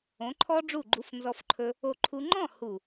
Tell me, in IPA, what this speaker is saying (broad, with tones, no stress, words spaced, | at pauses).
õ˨˦ǃʰɔ˦ɖ͡ʐu˦˨ ɡ͡ǃu˧fnzɔ˧fǃʰɵ˧ | o˧ǃʰu˧ ŋ͡ǃɔ̃˦˨hu˨